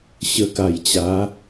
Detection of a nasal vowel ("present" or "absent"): absent